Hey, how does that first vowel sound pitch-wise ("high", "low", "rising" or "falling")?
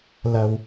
low